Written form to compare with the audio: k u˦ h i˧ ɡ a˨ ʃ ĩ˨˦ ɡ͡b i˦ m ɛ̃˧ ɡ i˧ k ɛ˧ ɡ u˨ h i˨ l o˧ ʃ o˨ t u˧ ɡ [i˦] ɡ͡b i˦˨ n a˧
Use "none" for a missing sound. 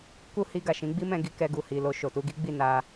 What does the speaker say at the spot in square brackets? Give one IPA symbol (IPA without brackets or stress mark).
i˦